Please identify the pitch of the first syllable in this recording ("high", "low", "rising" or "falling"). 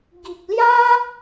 low